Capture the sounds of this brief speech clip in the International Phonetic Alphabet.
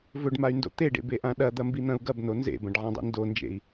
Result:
v ɵ ɖ m a y̯ n d o̰ t̪ e ɖ ḛ b e ʔ ã ɗ ɐ d̪ ɐ m b i n̪ ɐ̃ u̯ ɡ ɐ b n o n z ḛ b ɐ̃ ɖ ʕ ã dˤ ḭ n d o n d͡ʒ ḛ i̯

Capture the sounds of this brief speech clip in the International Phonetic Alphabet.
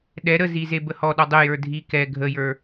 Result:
ɗ ɛ ɾ ə z i z e b ə h ɔ ɗ ɔ dˤ ə j ə˞ dʱ i k ɛ ɡʱ ə j ə˞

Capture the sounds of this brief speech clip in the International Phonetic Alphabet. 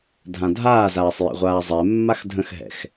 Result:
dʱ ã dʱ aː z aː sˤ j ɛ̰ ʁʷ aː zˤ ɛ mː a x dʱ ə̃ x ɦ ɛ̰ x

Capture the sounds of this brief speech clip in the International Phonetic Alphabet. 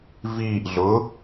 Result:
v iː ʔ ɮ ʊ

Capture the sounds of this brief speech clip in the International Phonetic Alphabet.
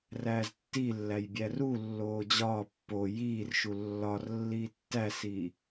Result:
r æː z tː i lː æ j bʲ æ r u lː oː d͡ʑ ɒː pː o j iː r ʃ u lː ɒ r lː iː tː æ s iː

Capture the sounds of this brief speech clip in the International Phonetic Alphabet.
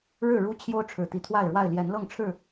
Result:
ɻ ɻ̩˥˨ ɻ u˦ t͡ɕʰ j o˦ ʊ̯ ʈ͡ʂʰ ɻ̩˨˩ t̪ i˨˦ t̪ʰ w a˥˨ ɪ̯ ɻ w a˥˨ ɪ̯ l j ɛ˨˦ n l ɤ˥˨ ŋ ʈ͡ʂʰ ɻ̩˥˨

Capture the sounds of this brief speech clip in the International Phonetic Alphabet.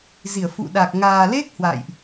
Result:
z i˧˩ ə̯ f ṵ˧˨ ɗ a˨˩ k̚ ŋ aː˨˩ l e˦˥ k̚ h w a̰˧˨ j ʔ

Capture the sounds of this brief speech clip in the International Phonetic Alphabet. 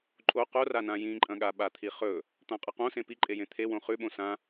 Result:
ǃʼ o q o r a n ã j ĩ ǃʼ ɐ̃ ɠ a ɓ a t̪ʰ i χ ɵ | t̪ ã qʼ ɐ q õ s ẽ p i ǃʼ e j ẽ t̪ʰ e w õ χ ʉ ɓ õ s ã

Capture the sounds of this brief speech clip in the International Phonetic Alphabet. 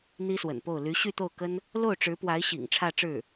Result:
n̪ i˥ s w ə̰˨˩ n p o˥˩ ʊ̯ l y˧˥ ɕ y˥˧ t̪ o˥˩ ʊ̯ k ə˥ n | l o˥˩ ʊ̯ ʈ͡ʂ ɻ̩˧˥ p w a˧˥ ɪ̯ ɕ ḭ˨˩ ŋ ʈ͡ʂʰ ä˥˧ ʈ͡ʂ ɻ̩˥˩

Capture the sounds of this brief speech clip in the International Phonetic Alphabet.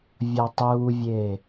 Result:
vʲ ɒ tˤ uː vʲ eː

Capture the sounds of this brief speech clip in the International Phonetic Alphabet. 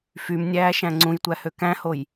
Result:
f y m nʲ æː ʃ æ̃ ŋ͡ǀ ũ j tʷ æ h ø k æ̃ h o j

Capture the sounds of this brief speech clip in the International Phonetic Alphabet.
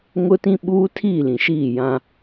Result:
ŋ ʊ˦ t ĩ˦ ɓ uː˦ tʰ iː˦˨ l ĩ˨ ʃ iː˦˨ j ã˦

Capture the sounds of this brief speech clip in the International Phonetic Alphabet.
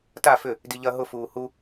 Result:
t a f ʏ | d i ʎ ɐ ɦ ʊ f uː h u

